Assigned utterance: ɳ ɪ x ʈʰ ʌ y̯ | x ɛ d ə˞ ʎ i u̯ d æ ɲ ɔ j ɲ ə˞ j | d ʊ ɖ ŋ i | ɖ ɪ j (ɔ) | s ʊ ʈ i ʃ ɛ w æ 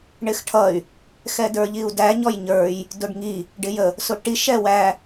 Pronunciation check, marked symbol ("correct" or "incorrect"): incorrect